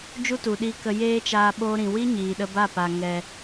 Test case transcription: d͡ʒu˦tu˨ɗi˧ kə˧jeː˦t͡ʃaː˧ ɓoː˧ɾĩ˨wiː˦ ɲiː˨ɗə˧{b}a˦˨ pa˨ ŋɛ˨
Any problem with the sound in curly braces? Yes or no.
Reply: no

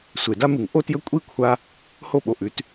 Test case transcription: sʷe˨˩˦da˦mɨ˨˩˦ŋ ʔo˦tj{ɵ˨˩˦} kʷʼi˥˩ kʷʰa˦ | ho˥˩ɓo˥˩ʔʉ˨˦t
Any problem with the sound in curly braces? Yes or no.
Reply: yes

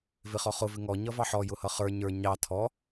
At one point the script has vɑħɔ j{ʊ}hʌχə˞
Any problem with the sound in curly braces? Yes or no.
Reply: no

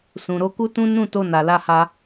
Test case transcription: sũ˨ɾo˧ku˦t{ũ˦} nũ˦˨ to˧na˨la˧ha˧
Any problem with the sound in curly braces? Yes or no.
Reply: no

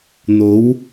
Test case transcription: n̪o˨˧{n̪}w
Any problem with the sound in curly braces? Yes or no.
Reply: yes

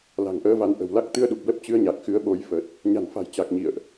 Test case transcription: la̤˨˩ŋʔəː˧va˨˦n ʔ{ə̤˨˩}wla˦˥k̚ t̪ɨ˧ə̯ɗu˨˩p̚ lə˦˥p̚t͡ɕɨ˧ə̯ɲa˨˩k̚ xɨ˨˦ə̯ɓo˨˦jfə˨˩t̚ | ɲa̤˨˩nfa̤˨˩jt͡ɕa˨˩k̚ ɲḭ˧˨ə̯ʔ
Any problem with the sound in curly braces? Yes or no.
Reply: no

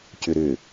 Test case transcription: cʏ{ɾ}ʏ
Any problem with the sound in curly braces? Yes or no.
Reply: no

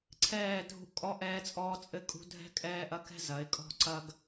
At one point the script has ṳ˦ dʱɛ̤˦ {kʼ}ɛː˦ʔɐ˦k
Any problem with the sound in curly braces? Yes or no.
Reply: no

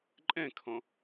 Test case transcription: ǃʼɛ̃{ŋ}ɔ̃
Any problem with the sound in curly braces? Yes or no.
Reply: yes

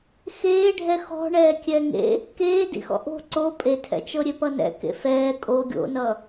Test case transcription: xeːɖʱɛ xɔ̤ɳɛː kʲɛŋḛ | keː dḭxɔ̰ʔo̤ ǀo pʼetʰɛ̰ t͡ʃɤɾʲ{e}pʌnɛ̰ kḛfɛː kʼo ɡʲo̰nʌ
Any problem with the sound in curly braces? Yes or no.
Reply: no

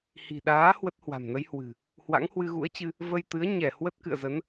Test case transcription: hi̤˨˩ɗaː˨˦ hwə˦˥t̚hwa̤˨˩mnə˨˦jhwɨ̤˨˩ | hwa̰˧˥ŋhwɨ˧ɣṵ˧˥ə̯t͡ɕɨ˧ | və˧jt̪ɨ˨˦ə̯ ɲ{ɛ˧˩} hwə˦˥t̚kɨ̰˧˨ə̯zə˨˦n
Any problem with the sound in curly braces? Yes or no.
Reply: no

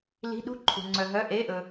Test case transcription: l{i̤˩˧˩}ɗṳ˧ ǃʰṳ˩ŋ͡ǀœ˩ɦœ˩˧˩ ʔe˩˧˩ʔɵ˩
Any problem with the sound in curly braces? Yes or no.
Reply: no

